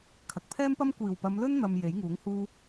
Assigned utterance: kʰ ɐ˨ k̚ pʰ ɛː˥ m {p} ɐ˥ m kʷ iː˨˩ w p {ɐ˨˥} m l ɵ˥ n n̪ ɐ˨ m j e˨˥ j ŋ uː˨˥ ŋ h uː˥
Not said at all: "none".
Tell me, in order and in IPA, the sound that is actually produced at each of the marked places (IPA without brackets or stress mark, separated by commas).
p, ɐ˨˧